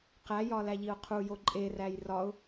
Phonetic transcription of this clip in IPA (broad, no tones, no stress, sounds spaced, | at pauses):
q æ j ɒ l æ ʎ i ʊ̯ qʰ u j o ǃʼ e r æ j r ɒ ʊ̯